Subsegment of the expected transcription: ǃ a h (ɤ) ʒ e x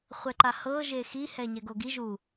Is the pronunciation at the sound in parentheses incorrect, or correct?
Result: correct